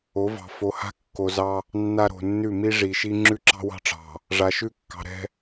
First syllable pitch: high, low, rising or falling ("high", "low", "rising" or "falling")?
rising